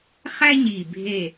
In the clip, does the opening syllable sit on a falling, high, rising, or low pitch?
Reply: high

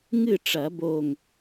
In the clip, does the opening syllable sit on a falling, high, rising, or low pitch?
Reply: falling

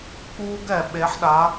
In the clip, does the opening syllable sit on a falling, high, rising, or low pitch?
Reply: high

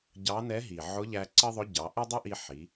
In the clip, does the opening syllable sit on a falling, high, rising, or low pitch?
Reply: rising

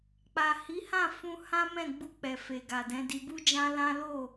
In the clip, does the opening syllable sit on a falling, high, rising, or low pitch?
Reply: low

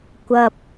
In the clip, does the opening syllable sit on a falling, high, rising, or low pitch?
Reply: high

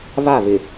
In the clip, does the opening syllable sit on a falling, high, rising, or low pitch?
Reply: falling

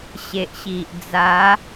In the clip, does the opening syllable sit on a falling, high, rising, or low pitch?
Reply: low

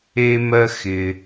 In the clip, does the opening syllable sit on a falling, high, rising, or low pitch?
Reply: high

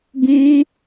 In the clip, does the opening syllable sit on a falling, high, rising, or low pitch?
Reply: high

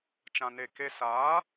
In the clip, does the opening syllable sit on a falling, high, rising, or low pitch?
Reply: low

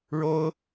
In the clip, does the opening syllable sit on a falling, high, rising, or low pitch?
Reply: high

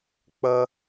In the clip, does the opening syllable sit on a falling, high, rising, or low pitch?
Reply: high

